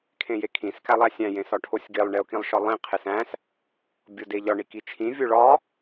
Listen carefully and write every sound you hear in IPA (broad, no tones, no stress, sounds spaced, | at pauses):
kʰ ẽ j e kʰ ĩ s k æ lˠ æ sʲ æ̃ j ẽ s ɒ ʈʰ o sʲ ɡ e lˠ ɳ e ʊ̯ k ĩ lˠ ʃ ɒ lˠ ĩ qʰ e s æ̃ s | bʲ o d e ʎ ɒ ɳ i k i t͡ʃʰ ĩ vʲ o ɭ ɒ